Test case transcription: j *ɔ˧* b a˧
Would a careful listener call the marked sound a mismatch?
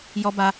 no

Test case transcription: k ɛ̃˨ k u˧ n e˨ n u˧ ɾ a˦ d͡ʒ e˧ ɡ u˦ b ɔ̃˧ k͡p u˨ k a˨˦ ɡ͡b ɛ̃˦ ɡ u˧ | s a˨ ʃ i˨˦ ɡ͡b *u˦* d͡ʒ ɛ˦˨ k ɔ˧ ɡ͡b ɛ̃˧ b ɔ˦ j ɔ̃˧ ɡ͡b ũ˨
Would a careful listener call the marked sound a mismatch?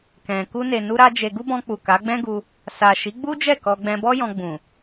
no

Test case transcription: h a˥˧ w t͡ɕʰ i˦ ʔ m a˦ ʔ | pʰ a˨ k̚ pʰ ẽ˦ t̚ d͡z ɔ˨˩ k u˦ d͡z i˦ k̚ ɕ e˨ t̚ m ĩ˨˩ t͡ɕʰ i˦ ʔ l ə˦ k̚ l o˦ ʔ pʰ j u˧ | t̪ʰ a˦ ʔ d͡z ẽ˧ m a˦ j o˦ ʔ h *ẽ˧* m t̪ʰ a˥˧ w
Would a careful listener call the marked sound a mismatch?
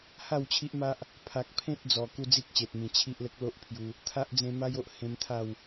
no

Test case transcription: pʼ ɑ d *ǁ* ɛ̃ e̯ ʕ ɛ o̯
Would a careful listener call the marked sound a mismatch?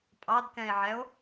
yes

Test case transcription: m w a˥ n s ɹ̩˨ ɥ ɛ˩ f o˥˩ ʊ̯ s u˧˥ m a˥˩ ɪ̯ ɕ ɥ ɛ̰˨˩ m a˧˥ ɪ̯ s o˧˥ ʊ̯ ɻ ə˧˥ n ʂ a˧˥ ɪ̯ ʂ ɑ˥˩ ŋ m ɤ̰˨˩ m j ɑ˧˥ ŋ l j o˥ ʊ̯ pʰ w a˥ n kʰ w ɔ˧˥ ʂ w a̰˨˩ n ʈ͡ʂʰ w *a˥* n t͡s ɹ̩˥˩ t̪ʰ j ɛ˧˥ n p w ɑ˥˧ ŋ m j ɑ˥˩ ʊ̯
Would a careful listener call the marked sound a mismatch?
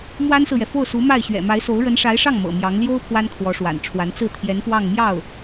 yes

